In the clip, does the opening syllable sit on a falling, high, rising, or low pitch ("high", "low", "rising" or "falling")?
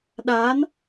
rising